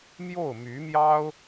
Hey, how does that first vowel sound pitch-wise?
falling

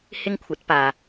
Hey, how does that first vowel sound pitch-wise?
high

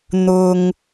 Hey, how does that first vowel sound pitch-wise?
low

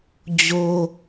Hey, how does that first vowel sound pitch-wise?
high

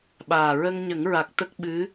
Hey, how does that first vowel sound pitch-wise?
low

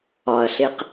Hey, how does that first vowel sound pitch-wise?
low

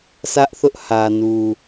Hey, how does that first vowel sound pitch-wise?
high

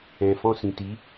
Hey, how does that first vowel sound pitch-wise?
low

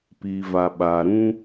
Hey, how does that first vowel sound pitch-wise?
low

